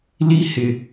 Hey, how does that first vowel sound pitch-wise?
high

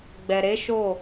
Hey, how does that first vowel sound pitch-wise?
low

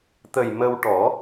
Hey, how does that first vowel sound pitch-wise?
low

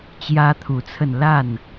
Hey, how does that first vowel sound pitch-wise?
high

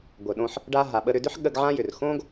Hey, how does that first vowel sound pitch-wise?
low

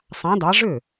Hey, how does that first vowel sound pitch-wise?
rising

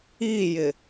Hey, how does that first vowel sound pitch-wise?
falling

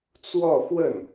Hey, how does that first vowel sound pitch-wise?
falling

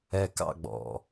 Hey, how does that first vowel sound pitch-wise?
low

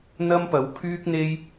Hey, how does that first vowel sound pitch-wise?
high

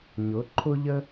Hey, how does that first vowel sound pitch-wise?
rising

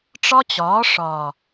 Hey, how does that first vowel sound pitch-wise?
high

